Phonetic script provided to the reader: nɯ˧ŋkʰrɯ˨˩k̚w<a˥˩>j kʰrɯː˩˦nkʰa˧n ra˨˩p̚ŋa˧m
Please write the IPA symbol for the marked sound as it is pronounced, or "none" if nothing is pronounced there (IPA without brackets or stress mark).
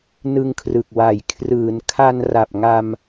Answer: a˨˩